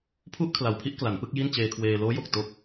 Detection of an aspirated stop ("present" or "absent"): present